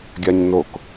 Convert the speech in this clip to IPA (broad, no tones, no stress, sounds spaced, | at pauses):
ɡʲ a ɲ n o k